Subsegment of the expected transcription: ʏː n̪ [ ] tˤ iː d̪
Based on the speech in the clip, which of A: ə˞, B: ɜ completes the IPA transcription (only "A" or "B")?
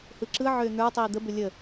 A